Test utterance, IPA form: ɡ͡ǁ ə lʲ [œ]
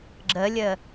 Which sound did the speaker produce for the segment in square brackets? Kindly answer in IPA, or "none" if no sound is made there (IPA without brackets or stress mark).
ə